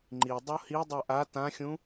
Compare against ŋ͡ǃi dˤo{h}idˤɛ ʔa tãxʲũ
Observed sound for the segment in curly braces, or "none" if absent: h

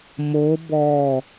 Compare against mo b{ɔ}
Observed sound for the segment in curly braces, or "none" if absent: ɔ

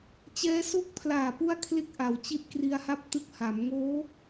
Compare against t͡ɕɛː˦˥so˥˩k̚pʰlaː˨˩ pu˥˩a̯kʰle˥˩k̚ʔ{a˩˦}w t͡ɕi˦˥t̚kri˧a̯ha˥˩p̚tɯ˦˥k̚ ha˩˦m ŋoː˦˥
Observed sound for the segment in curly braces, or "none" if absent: a˩˦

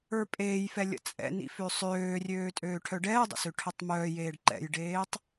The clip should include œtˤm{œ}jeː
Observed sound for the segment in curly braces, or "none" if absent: œː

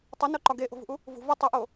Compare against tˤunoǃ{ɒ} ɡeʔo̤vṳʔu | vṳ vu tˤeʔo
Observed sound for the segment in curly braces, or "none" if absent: ɒ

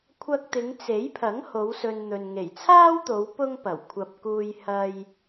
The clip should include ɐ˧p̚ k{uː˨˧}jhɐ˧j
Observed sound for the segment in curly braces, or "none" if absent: uː˧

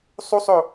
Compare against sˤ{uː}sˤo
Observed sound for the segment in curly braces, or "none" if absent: u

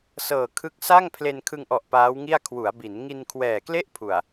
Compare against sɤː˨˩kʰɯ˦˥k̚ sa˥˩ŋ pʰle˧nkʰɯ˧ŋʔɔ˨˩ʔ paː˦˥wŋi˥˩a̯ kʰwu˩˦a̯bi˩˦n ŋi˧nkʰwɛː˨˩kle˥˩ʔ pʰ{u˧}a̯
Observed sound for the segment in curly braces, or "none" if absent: u˨˩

